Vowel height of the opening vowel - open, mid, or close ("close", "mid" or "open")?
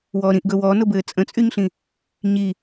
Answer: mid